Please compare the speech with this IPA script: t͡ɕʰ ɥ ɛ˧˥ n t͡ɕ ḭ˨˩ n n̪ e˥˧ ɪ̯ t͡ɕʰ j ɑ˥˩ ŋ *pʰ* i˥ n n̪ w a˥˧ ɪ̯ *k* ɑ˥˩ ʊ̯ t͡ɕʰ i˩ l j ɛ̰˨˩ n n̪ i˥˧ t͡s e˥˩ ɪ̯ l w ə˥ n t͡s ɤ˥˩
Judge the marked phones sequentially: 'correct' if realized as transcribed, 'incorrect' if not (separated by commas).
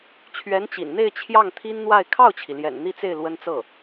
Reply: incorrect, incorrect